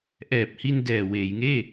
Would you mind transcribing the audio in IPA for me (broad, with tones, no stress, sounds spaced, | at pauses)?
ʔ ɛː˨˩ p̚ h i˧ n d ɛː˨˩ w eː˩˦ j ŋ eː˥˩